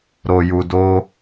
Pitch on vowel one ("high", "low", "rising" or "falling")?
low